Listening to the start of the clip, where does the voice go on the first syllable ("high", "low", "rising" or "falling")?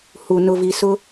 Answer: low